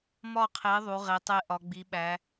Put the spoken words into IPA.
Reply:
m ɒ˦˨ qʰ e˨˦ ðˤ u˨˦ ʁ e˨˦ tˤ e˦˨ ʔ ɒ˨˦ ɡ͡b i˨˦ ɓ æ˨˦

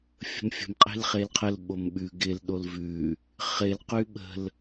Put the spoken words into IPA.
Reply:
fʲ ə̤ m fʲ ə̤ m qʼ e̤ l χ e l qʰ ə l ɓ o m ɓ ʉ ɡ ɪ l ɗ o l v ʉ | χ ɪ l q ʉ ɓ ə̤ l

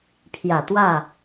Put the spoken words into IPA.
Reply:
pʰ j ä˨˩ t̪ w ä˥˨

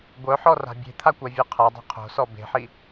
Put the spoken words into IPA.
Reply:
ɡʷ œ ħ ɔ r a̤ bʲ e̤ t̪ʰ a kʷ a vʲ o qʰ a dˤ o̤ qʰ o̤ s ɔ b e̤ ħ i

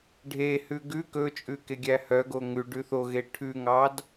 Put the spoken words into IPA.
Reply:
ɖʱ e h ʉ ɡ ʉ k ɵ t͡ʃʼ ʉ k e ɡʲ æ h œ ɡ o ŋ ʉ ɖ ʉ θ o ɣ e ʈʰ ʉ ŋ ɑ d

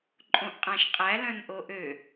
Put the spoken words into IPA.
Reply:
ǃʼ õ ʔ qʼ æ̃ ʃ qʼ æ l œ̃ n ʔ o ʔ ø

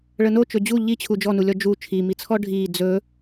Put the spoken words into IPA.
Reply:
ɭ ə n o t͡ʃ ɵ d͡ʑ u ʎ i t͡ɕʰ u d͡ʒ ɔ n u lʲ ɔ d͡ʒ u t͡ʃʰ i m i t͡sʰ ɔ ɖʱ i d͡z ɵ

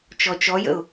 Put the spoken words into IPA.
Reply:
t͡ʃ ɔ t͡ʃ ɔ j ə̰ ʊ̯

